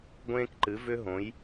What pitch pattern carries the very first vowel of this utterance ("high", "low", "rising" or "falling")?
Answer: high